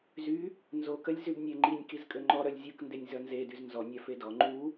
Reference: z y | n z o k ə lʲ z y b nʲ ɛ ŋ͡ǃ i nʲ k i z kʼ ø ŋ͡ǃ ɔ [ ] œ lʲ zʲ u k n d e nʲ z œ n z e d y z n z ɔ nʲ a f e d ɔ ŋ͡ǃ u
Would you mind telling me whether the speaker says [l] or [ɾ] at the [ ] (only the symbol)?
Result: ɾ